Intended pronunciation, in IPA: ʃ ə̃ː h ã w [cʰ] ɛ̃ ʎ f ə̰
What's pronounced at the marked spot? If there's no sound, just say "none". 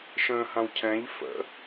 cʰ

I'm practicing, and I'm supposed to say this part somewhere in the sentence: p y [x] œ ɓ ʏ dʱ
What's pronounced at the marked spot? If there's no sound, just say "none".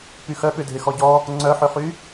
x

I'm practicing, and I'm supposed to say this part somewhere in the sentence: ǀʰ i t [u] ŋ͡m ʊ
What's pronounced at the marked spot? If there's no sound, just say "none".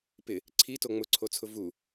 o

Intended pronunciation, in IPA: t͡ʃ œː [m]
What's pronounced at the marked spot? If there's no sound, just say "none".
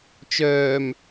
m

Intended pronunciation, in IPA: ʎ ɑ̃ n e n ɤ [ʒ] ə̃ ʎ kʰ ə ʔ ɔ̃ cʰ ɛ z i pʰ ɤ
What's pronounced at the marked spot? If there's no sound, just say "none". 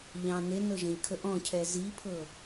ʒ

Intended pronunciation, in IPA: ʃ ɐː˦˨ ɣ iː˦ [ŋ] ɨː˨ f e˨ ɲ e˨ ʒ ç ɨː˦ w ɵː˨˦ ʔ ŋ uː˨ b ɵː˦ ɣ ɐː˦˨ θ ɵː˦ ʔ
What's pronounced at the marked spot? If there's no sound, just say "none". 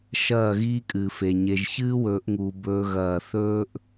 kʼ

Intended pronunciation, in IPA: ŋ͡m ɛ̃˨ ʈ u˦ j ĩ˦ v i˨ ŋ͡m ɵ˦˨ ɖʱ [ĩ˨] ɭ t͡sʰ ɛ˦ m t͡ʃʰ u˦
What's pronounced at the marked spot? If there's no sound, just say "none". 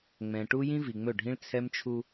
ĩ˦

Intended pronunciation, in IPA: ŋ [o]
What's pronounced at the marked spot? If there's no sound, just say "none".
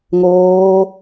oː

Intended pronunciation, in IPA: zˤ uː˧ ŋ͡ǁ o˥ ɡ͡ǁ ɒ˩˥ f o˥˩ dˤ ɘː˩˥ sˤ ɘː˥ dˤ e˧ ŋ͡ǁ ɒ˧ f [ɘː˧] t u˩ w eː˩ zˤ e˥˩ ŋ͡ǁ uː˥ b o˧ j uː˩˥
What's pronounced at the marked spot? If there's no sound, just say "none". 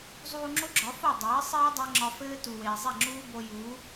ɘː˥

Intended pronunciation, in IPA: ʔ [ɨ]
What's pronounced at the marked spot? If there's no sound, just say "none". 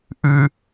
ɨ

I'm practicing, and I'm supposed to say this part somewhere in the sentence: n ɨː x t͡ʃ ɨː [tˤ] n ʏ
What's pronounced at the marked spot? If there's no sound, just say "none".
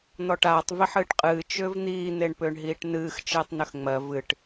tˤ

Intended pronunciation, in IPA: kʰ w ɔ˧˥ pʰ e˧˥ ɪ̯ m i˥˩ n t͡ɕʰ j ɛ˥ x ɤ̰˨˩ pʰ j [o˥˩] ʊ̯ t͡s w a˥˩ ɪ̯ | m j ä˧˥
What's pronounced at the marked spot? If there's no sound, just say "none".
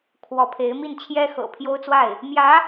o˥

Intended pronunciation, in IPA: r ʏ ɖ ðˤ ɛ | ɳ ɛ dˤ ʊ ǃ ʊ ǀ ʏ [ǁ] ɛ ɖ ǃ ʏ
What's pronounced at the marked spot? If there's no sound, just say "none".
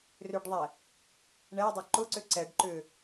ǀ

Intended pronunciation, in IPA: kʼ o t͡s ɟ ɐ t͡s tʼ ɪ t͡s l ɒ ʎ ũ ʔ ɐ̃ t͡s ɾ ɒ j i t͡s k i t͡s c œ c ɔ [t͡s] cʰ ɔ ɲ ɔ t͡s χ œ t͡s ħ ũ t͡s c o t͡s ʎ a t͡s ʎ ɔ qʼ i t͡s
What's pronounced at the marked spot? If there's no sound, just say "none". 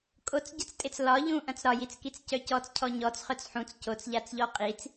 t͡s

